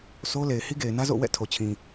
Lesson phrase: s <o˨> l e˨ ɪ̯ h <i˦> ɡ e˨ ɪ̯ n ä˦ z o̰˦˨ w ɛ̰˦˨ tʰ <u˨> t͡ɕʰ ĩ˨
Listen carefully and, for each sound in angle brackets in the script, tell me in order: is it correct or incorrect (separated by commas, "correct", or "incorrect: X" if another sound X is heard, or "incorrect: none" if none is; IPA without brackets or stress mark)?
incorrect: o˦, correct, incorrect: o˨